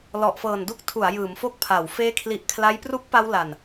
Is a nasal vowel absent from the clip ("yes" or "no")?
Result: yes